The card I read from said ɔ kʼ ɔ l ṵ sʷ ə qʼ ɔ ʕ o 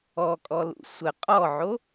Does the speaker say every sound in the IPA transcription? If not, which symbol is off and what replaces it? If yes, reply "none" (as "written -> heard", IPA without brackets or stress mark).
none